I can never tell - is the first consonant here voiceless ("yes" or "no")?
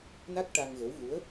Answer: no